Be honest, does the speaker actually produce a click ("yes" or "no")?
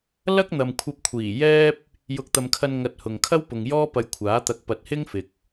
no